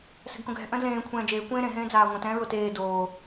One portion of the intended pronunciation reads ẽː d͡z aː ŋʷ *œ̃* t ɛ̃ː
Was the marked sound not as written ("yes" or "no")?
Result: no